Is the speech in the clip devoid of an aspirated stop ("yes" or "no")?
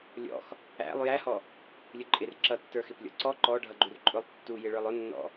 yes